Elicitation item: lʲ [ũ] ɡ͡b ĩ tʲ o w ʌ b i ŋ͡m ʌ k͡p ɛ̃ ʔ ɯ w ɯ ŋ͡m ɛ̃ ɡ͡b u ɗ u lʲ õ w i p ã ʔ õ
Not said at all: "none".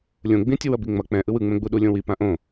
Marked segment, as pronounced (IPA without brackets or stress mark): õ